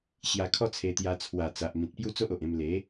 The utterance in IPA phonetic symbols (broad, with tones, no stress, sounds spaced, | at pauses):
ɕ j a˧ kʰ ɔ˦ t͡sʰ e˧ t̪ j a˧ t͡sʰ w a˨˩ t͡s a˨ ʔ m ĩ˨ t̚ p j u˦ t͡s o˦ ʔ o˨ ʔ ẽ˧ m l e˨˦